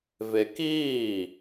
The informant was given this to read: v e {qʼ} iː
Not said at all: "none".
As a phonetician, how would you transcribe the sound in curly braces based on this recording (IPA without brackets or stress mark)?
k